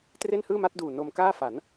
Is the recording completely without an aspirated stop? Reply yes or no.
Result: yes